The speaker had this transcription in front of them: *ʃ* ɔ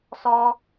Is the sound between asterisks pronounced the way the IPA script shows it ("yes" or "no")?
no